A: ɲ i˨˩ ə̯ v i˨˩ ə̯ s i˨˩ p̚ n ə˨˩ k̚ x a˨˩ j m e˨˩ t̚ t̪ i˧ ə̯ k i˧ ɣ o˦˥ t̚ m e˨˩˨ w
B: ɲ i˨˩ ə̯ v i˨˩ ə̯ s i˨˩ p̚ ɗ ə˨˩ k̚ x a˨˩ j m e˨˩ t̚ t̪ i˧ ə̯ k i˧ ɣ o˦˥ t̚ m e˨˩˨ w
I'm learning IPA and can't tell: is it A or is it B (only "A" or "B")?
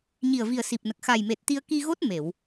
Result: A